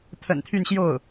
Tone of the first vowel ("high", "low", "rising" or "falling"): low